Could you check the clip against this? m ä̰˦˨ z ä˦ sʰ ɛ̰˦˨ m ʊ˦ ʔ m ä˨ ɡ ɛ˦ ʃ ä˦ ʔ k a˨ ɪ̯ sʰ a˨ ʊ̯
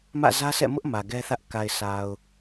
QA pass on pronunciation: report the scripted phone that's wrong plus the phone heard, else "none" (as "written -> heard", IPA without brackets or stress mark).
ʃ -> θ